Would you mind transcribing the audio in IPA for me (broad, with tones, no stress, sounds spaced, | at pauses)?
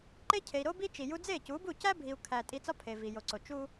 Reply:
ǃ e˦ cʰ e˨ i̯ ɾ o˦ b i˦ t͡ʃ i˨ j u˧ d͡z e˦˨ c u˨˦ b u˦˨ c æ˦ bʱ i˨ u̯ kʰ æ˨ tʼ i˧ t͡s ɒ˦ pʰ e˨ v i˨ j o˨ ǀ o˨ t͡ʃ u˦